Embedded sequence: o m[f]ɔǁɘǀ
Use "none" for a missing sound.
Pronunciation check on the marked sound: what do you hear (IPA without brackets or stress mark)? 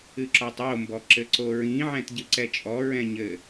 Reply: b